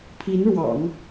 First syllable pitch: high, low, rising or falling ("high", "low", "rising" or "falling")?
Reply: rising